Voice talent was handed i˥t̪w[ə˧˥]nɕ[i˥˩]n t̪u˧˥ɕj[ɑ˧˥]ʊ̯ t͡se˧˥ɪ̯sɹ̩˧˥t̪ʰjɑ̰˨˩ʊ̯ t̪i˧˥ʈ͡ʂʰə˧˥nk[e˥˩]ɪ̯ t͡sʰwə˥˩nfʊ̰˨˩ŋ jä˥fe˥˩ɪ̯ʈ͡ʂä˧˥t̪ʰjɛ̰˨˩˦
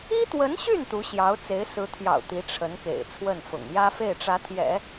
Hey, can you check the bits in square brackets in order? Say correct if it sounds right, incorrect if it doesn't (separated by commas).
correct, incorrect, correct, incorrect